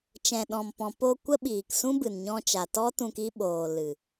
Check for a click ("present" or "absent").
absent